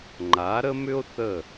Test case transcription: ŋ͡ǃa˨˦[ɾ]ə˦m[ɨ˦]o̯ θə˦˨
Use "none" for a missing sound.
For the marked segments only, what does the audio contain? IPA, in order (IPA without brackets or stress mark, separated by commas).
ɾ, ʏ˦